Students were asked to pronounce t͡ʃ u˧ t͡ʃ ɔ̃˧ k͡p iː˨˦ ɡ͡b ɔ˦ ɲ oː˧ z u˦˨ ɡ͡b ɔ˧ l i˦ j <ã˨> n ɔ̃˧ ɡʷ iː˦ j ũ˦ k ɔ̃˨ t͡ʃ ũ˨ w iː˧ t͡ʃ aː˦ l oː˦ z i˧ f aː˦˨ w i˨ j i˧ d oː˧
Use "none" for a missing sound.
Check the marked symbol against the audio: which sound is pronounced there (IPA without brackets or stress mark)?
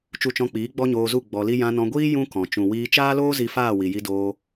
ã˧